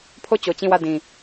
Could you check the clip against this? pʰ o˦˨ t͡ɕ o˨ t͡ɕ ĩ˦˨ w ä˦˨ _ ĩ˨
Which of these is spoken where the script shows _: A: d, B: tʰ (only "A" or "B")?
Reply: A